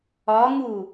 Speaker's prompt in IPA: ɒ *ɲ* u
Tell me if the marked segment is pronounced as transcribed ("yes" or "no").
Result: no